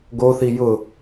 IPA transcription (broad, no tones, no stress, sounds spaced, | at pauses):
ɡ o θ i j ʊ